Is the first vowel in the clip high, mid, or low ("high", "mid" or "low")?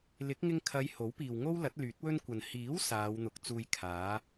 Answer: high